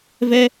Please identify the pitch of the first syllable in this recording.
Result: high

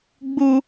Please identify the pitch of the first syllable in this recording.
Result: high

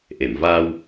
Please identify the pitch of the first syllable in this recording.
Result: low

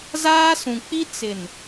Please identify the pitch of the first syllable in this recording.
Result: high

